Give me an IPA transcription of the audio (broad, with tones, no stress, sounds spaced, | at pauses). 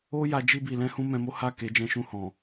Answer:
o˦ j a˧ d͡ʒ i˧ b i˨ l ɛ̃˨˦ h ũ˦ m ɛ̃˧ m o˦ h a˦˨ k e˨˦ d͡ʒ ɛ̃˧ ʃ ũ˧ h ɔ̃˨